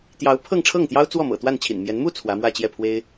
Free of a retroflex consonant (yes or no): no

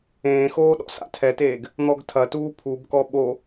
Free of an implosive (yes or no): no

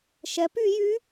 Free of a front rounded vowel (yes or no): no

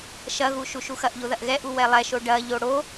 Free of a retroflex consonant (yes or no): no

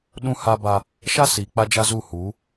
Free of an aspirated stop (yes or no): yes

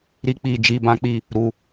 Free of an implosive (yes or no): yes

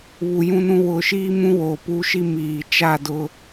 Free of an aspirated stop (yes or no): yes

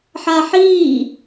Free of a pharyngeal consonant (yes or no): no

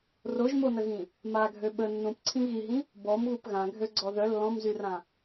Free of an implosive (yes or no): no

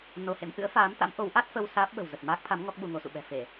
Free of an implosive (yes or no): no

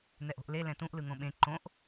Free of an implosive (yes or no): no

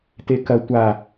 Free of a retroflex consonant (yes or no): yes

